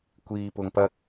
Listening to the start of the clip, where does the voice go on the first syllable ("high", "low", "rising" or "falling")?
low